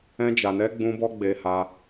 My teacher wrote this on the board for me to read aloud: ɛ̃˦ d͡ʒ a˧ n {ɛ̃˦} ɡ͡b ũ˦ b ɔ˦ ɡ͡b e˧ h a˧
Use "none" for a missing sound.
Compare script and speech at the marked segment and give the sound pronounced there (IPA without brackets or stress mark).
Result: ɛ˦